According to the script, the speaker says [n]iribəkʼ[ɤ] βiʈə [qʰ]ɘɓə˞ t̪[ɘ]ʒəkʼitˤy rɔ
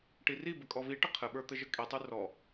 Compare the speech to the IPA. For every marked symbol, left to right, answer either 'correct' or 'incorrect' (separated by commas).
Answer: incorrect, incorrect, correct, correct